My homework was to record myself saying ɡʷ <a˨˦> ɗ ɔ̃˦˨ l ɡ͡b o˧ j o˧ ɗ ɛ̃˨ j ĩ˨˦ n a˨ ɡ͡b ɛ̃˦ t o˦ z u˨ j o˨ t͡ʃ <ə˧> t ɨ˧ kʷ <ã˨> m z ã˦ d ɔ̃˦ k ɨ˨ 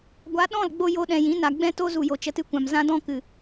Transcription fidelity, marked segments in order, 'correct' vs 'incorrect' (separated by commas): correct, correct, correct